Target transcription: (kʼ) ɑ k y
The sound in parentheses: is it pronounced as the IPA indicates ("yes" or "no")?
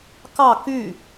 no